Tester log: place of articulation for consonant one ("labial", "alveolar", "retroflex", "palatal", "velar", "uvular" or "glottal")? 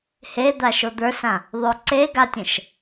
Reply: glottal